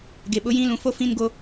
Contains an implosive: yes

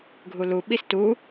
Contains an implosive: yes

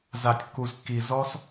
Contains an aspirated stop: no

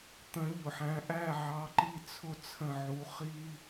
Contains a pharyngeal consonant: yes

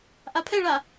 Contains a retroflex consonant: yes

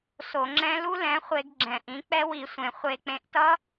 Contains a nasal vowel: yes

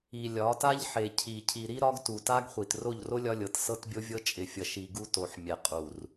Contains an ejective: yes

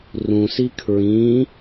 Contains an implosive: no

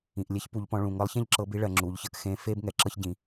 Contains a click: yes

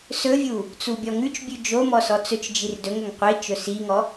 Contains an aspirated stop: no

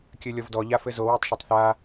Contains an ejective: no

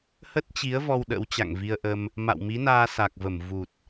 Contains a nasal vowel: no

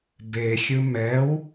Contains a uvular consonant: no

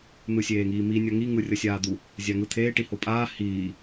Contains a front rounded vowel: no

